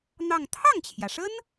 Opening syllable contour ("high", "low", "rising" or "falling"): falling